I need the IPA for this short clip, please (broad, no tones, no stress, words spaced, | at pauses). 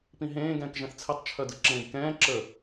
pĩɦẽː ɡɛ̃ːkʒɛ̃θt͡sʰetˤ t͡ʃʰœdɯǁẽːɡkɛ̃ː ǁə